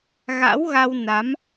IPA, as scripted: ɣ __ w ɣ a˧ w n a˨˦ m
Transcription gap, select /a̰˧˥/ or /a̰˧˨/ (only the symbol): a̰˧˥